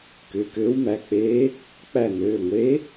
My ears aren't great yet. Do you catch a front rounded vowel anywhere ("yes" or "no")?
yes